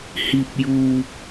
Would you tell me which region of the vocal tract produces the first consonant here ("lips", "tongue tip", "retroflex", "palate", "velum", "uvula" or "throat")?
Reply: throat